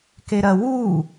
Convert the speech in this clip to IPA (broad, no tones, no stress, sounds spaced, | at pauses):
k e ɾ ɐ w u